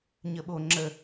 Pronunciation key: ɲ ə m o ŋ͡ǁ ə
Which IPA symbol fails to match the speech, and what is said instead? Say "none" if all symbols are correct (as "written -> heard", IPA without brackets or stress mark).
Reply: m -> ɓ